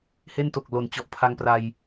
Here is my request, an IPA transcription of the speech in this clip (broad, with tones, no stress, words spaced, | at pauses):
he˥˩nto˨˩k̚ lo˨˩nt͡ɕɔ˨˩ʔ pʰa˧ŋpra˧j